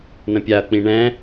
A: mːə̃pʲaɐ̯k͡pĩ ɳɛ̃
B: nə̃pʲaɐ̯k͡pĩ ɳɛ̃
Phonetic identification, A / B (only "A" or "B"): B